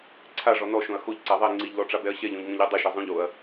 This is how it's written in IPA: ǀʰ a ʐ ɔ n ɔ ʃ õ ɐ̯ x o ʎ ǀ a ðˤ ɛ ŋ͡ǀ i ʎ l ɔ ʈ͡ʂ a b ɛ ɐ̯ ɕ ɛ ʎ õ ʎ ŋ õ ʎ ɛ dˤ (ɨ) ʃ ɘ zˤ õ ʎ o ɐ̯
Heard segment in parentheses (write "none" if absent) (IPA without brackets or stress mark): ɨ